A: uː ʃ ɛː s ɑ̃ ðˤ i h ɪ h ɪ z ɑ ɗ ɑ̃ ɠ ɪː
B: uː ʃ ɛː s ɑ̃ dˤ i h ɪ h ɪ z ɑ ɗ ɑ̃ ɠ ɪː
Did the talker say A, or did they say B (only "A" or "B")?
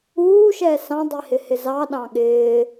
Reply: B